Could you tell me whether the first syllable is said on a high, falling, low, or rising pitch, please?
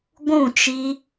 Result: falling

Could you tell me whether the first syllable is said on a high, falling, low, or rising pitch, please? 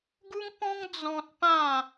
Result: high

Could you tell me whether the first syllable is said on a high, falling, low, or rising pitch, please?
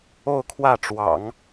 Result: falling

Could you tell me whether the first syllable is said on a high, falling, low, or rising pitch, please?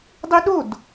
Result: high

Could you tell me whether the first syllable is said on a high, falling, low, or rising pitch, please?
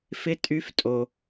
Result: rising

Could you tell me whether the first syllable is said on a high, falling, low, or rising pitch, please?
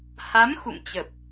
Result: rising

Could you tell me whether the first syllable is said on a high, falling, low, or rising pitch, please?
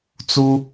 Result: high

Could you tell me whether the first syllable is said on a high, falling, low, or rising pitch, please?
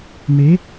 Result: rising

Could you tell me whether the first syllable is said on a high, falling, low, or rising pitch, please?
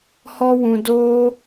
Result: high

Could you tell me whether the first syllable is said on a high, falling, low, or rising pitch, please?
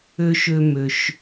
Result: high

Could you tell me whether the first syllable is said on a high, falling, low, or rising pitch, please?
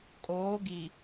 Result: rising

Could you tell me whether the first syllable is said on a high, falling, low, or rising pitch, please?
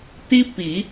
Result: high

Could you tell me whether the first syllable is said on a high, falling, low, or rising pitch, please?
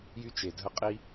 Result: high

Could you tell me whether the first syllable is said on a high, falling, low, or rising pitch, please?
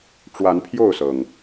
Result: rising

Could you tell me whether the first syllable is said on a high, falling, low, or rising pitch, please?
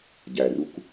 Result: low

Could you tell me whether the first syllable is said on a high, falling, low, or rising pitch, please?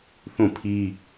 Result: falling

